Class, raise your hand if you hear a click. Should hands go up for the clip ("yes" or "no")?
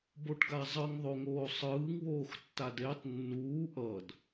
no